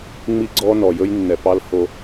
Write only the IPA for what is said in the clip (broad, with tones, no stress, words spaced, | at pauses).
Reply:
ŋ͡mi˧ɡ͡ǀɔ˧ nɔ˨jɵ˦j nːɛ˨pɑ˧l ho˧